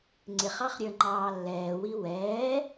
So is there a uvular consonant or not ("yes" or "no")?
yes